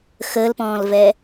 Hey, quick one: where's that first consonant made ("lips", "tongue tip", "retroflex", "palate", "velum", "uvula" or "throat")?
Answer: velum